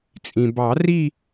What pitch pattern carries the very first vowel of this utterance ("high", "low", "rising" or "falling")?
low